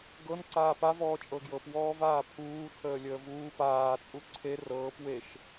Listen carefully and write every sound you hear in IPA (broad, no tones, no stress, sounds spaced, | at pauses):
ɡ ɤ n ǀ aː p a v ɔː t͡ʃʼ ɤ ɡ j ɤ p w ɔː v aː pʰ uː tʰ əː lʲ əː v uː p aː t͡sʼ u ǀʰ e r ɤː p w e ʃ